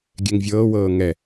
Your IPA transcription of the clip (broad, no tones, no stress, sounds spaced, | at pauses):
ɡʲ ɛ ŋ vʲ ɤː w ɤː ŋ ɛ